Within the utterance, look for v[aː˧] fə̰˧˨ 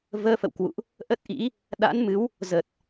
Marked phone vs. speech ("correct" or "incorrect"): incorrect